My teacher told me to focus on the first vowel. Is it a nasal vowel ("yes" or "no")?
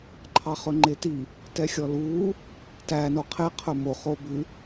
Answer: no